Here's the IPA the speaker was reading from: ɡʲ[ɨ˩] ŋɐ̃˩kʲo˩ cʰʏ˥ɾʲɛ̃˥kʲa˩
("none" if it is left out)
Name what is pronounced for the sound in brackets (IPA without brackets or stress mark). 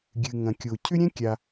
ɨ˩